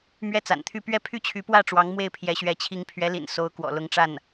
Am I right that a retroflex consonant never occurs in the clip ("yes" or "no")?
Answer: no